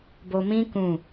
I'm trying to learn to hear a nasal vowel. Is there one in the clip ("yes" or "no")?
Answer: yes